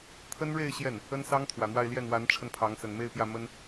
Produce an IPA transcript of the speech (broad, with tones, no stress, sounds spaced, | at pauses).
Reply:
t̪ʰ ə˥ n ɻ e˥˧ ɪ̯ ɕ j ɛ˥˩ n | ə˥ n s ɑ˥ ŋ t̪ʰ w ä˨˩ n̪ w a˥˧ ɪ̯ l j ɛ˥˩ n w a˧˥ n ʈ͡ʂʰ ə˧ n pʰ ɑ˧˥ ŋ s ə˨˩ n m e˥˧ ɪ̯ p j ä˥˩ m ə˥ n